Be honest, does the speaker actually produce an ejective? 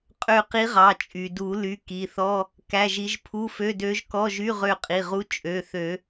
yes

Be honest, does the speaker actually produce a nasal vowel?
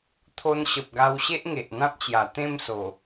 yes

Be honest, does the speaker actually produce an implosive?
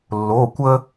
no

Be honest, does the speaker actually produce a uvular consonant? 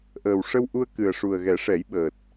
no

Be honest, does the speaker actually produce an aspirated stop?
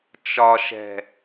no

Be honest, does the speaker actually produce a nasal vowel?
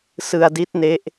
no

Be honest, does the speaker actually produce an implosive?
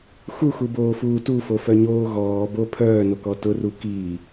no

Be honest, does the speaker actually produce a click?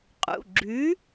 yes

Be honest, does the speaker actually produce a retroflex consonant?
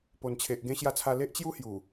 no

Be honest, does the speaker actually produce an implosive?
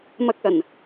no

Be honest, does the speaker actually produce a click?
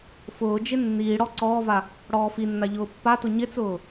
yes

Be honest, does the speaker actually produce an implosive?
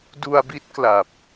no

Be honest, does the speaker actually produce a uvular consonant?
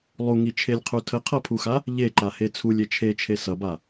yes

